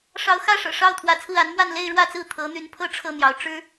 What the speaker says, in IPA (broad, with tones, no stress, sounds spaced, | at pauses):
ʂ ɑ˧˥ ʊ̯ x ä˥˩ ʂ ɤ̰˨˩ ʂ ɑ˥˩ ʊ̯ t̪ʰ w ä˧˥ t͡sʰ ɹ̩˥˩ a˧˥ n m w a˥˧ n l e˥˧ ɪ̯ ɻ w ä˥˧ t͡s ɹ̩˥˩ t̪ʰ ɤ˧˥ n̪ y˧˥ n pʰ ɤ˥ ʈ͡ʂʰ ɤ˥˩ n̪ j ɑ˧˥ ʊ̯ ʈ͡ʂ ɻ̩˥